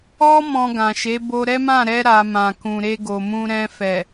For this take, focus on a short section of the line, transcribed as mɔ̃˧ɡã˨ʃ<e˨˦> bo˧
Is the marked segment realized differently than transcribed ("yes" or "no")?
no